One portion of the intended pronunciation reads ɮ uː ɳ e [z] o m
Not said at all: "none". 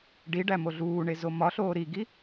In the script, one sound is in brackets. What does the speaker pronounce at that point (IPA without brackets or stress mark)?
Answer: z